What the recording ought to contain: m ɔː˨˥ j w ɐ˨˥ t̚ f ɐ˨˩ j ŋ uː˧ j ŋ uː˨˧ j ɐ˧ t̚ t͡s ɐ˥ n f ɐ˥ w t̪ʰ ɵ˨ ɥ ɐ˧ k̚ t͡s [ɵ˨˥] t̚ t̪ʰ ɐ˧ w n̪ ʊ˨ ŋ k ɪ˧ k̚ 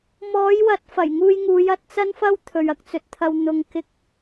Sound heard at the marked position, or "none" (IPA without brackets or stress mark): ɵ˨˥